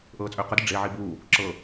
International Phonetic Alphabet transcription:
ʔɤːt͡sʼʏːqədə ɖ͡ʐe ʕibu | ǁɤ

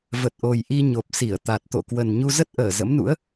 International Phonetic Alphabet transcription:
və˨˩t̚ʔo˨˩j ʔi˧ɲo˨˩p̚si˧˩ə̯ t̪a˨˩t̚t̪o̰˧˨ kwə˨˩nɲu˧ zə˦˥t̚ʔəː˧˩ zə̰˧˥mnṵ˧˥ə̯

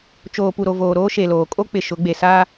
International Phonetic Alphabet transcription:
t͡ʃoː˨pu˨ɾo˨ voː˨ɾoː˦ ʃe˨loː˨ kʼo˦k͡pɪ˨ ʃʊ˨˦ɡ͡be˨ saː˦

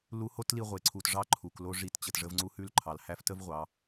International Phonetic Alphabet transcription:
lu˧˥ho˥tli˧ ʁʷe˩ǀʰu˩t ʐɑ˧˥ ǃʰu˩klo˧ ʐi˧t t͡ɕə˩tʐə˧vŋ͡ǀu˧˥ hʉ˧lǃʰɑ˩lhæ˧f tə˥vʁʷɑ˩˧

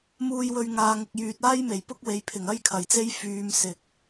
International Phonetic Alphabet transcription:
muː˧jwɵ˧ɥ ŋaː˨ŋʊ˨k̚jyː˨t̚ aː˥jme˨˩j pʊ˥k̚we˨˧j pʰɪ˨˩ŋɐ˥jkʰɐ˨˩jt͡se˥j fyː˧m sɪ˨k̚

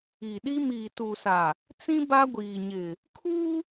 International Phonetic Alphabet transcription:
i˨ɗi˦ miː˨tu˨sa˨ | t͡sĩ˦ ba˦ɡʷiː˨ɲɪ˨ | kʰu˦

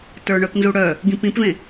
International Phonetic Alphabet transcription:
tə˞ɳœpnzuɽœ | ɡĩpĩpvẽ

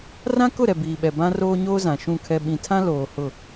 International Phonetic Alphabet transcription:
rã˦kʊ˦˨ ɾɛ˨biː˨ɓɛ˨ bã˦roː˦ɲoː˦zã˨ ʃũ˦˨kʰɛ˦ ɓĩ˨tʰã˦ loː˨ hʊ˦˨

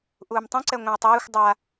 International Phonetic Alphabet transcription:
ʔuːmtˤũǀɛ ŋʷɛ̃y̯tˤeːxʷ dˤa

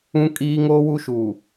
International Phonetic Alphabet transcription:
ũ˦kʼiː˦ ŋoː˦wu˦ʃuː˨

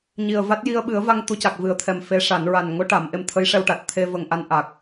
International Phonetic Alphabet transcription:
ɲi˨˩ə̯va˦˥t̚ ji˧ə̯ɓɨ˨˩˦ə̯va˧ŋ t̪u˧˥ca˨˩k̚vɨ˨˩˦ə̯t̪ʰɛ˨˩m fe˧˥ʂa˨˩˦n ɹa˨˩nŋo˧˥ʈa˨˩˨m ʔe˧mt̪ʰə˧˥jʂɛ˧wʈa˨˩t̚ t̪ʰe˧ və˧ŋʔa˧˥nʔa˨˩k̚

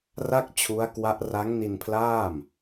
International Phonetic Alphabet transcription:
ra˥˩k̚ t͡ɕʰu˦˥a̯kwa˦˥ʔ ra˦˥ŋni˧npʰlaː˥˩m

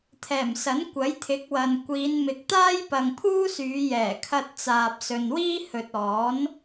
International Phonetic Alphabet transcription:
t̪ʰɛː˨˩msɐ˨˥n kʷɐ˨˥jt̪ʰɪ˨˥k̚wɐ˨n kʷiː˨˧n mɪ˨k̚t̪aː˥jpɐ˨ŋ pʰuː˥syː˨˧jɛː˨˩ kʰɐ˨t̚ t͡saː˨p̚sɵ˨nwiː˥ hɵ˨t̚ɔː˨˥n

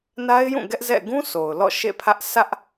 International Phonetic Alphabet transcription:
na˦ɪ̯jũ˦˨ ɡɛ˦ʔzɛ̰˦˨ ɡũ˦ sʰo˨ʊ̯lɔ̰˦˨ʃḛ˦˨pʰä˦ʔ sʰä˦ʔ

